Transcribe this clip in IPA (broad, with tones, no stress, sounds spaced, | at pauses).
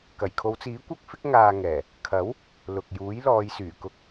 k ɐ˨˩ j kʰ o˨˧ w t͡s iː˨˥ kʷ ɐ˥ k̚ f ɪ˥ k̚ ŋ aː˧ ŋ ɛː˨˩ | kʰ ɐ˨˥ w | l ʊ˨ k̚ j uː˨˥ j l ɔː˨˧ j s yː˨˩ k ʊ˧ k̚